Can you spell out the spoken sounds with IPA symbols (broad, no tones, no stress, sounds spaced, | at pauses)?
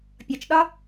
pʲ ɒ t͡ʃ ɗ ɒ